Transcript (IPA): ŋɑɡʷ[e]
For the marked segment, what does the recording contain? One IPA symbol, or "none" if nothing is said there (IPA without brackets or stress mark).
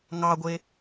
e